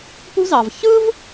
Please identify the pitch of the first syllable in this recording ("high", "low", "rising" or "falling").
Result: high